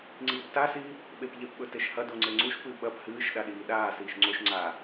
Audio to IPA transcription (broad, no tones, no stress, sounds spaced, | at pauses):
ŋ͡ǀ iː p t a s iː | ɓ e p ʎ e p ɓ ɵ t e ʃ h ɐ d o ŋ͡ǀ e ŋ͡ǀ u ʃ p ɨ ɓ ɐ p h ɨː ʃ ɗ a ɗ iː ɗ aː s iː ʃ ŋ͡ǀ o ʃ ŋ͡ǀ aː